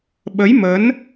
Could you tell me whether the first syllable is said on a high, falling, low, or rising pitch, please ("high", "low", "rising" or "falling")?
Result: rising